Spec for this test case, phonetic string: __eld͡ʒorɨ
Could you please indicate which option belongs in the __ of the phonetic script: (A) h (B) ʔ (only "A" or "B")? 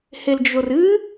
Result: A